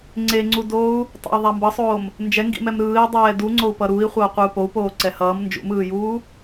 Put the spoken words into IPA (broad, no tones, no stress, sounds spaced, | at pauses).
ŋ͡ǀ e ŋ͡ǀ u d oː u̯ | tˤ a̰ i̯ ðˤ a m b ʌ sˤ oː m | n d͡ʒ ɛ ŋ ɡ ḭ m ɛ m ɾ ɯː i̯ dˤ ɛː d u ŋ͡ǀ o u̯ p ʌ ɾ u i̯ χʷ ʌː qʷ ɯ u̯ p o u̯ p oː ǀ ɛ h ʌː m n d͡ʒ ṵ m ɯː j uː